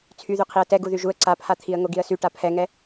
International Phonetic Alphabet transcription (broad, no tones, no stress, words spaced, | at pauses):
t͡sʰyðy qʰiə̯tɛ ɡuðyʒuə̯ ǀapʰat̪ʰiə̯ ŋoɡiə̯sy ʈapʰɛŋɛ